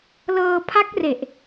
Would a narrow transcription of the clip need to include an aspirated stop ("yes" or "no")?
yes